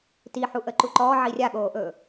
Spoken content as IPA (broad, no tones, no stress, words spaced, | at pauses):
tiħu ʔəǃuǃɔː ʕirʲaɠoːʔɵː